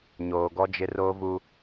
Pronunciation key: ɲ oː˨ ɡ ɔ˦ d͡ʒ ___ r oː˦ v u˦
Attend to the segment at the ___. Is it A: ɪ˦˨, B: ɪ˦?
B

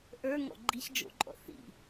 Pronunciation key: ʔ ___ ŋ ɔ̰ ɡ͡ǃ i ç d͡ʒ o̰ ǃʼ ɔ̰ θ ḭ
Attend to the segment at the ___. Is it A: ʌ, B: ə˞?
B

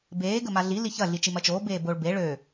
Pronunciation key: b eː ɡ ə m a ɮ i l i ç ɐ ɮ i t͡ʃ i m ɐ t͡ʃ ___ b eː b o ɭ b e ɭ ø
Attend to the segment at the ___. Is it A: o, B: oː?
B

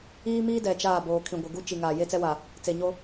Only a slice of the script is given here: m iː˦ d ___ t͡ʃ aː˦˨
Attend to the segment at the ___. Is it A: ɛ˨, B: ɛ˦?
A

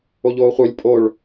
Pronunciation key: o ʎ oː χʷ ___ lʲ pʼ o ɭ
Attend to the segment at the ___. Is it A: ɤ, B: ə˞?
B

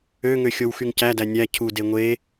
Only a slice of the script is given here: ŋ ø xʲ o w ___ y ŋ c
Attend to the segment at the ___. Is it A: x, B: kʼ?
A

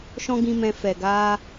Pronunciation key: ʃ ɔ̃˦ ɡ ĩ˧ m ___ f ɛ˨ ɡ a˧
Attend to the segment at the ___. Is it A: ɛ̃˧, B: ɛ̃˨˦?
A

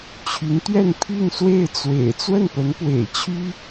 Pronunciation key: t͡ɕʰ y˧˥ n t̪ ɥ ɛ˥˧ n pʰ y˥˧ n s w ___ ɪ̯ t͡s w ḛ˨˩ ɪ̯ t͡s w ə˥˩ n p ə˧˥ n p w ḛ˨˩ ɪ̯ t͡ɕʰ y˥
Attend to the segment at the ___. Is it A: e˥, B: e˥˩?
B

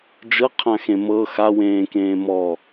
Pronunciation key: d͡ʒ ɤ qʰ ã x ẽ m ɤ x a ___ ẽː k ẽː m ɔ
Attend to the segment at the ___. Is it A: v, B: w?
B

